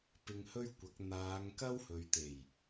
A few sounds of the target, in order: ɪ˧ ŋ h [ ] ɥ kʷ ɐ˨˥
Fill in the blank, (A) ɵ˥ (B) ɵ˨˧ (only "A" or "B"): A